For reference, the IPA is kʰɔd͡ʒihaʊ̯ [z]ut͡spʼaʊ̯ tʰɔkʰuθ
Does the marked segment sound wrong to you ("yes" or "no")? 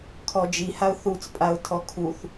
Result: yes